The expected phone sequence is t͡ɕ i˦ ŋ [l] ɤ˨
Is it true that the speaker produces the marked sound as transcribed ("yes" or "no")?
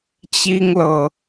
yes